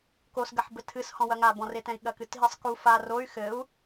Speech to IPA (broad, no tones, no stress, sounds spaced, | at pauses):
k o s ɡ ɐ ħ b ɘ tʰ ɨ s h ɔ̃ w ɐ ŋ a b ɔ̃ r e t ɛ̃ i̯ ɠ ɐ k ɨ t ɦ i sˤ k u f a r o y̯ x ɘ u̯